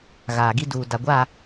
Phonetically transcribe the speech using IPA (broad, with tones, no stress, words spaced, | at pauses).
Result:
ɣaː˨ɡi˦duː˨ da˨ɡʷa˦˨